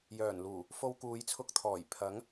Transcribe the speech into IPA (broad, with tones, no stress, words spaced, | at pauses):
jœː˨˩nluː˨˩ | fo˧wkuː˨˧jt͡sʰʊ˧k̚t̪ʰɔː˨˩j pʰɐ˨˥ŋ